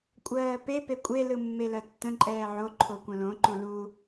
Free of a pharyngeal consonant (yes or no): no